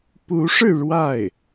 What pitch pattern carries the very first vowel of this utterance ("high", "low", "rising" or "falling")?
rising